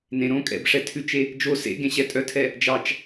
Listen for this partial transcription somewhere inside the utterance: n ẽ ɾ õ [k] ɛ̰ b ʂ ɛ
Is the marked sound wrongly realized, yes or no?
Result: yes